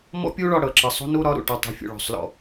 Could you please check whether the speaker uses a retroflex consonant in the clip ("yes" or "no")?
yes